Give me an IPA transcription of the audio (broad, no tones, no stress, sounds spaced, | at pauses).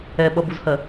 ɛ ɓ ʌ b u z h ɜ